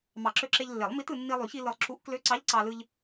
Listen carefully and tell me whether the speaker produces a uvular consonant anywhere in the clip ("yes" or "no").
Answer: no